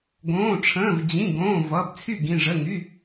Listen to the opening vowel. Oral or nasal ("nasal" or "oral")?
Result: nasal